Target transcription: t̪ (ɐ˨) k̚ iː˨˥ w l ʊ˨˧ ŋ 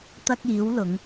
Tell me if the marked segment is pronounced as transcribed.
no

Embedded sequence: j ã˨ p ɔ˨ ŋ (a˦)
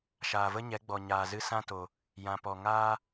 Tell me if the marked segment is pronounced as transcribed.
no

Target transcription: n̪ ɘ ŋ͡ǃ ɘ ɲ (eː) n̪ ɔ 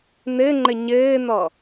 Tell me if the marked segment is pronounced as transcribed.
no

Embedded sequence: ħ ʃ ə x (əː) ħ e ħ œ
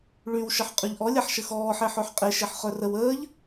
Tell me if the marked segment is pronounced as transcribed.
no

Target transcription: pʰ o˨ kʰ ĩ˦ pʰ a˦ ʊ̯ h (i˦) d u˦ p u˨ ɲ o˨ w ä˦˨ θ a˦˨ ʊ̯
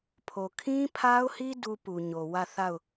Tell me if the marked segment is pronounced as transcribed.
yes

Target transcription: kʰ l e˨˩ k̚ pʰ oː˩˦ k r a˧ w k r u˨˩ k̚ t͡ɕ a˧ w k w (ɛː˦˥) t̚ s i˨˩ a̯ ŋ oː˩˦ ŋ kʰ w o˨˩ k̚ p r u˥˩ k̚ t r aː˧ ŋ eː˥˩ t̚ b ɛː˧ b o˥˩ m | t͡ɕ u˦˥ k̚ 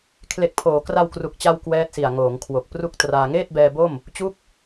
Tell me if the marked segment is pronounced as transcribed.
yes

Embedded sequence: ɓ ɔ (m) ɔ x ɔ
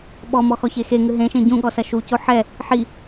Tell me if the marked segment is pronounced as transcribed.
yes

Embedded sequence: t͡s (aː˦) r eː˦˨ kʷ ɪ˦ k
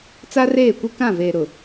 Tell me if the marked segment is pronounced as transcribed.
no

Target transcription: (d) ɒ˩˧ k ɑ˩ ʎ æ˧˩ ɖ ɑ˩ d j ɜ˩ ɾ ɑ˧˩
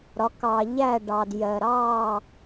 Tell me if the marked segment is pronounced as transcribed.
no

